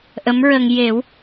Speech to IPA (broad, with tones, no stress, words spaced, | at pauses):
ʔə˧˥mɹə˧ŋ je˨˩˦w